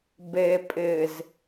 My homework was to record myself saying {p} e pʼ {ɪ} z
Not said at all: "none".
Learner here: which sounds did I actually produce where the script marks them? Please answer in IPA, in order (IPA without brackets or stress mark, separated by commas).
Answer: b, ɪ